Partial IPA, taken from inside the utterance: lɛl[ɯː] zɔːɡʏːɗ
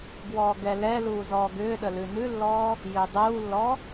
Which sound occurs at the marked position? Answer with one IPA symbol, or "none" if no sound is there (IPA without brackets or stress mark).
uː